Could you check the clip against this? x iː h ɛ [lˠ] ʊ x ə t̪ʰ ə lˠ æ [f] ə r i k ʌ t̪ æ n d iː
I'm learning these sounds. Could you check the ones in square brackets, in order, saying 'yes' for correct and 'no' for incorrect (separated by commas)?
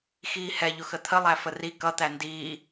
no, yes